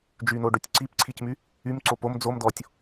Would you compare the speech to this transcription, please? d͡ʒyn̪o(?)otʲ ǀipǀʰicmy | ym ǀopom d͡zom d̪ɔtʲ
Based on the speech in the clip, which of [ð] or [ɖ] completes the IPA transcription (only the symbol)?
ɖ